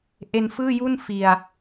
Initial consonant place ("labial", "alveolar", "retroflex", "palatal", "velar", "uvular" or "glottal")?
glottal